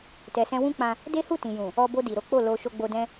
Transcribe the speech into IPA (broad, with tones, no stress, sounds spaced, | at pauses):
t ɛ˨ s ɛ̃˧ w ũ˦ k͡p ã˧ | d e˦ h u˦˨ t ĩ˨ j ũ˨ | ɔ˧ b o˧ d i˨ ɾ o˨˦ k͡p o˦˨ l o˧ ʃ o˧ ɡ͡b o˧ d ɛ̃˦